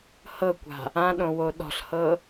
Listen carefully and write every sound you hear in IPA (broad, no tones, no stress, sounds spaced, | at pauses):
h ɤ kʷ a̤ | ã ɗ õ w o ɗ ɔ̤ ɬ h ɤ